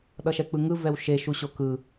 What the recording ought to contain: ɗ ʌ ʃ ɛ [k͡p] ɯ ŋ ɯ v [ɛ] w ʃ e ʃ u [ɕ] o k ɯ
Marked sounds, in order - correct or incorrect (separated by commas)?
correct, correct, correct